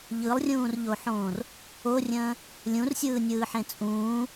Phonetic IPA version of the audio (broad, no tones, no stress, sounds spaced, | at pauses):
ʎ ɯ lˠ rʲ ũː r ʎ o ħ õː r | o rʲ ə̃ː | lʲ ũ r sʲ ɯː nʲ ɯː ħ ẽ t͡sʼ ũː